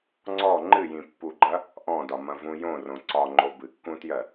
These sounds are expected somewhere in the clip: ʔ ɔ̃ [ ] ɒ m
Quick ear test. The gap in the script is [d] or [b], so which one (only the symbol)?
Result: d